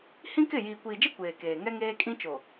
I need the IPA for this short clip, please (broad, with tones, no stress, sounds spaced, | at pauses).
h ĩ˦ k ɪ˦˨ j iː˨ kʷ iː˨ d͡ʒ e˦ kʷ eː˨ k eː˨ ŋ ɛ˦ ŋ eː˦ kʼ ĩ˦ t͡ʃ o˨